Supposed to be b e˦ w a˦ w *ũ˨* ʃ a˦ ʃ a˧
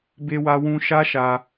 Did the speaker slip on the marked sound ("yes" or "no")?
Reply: yes